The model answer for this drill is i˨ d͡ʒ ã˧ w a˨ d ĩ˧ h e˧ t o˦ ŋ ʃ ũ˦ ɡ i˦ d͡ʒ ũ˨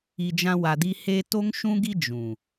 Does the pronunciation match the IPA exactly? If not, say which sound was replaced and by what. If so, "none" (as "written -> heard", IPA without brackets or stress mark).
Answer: ĩ˧ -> i˧